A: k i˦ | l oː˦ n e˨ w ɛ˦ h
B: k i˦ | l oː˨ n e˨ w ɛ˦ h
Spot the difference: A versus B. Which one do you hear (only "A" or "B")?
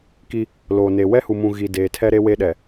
B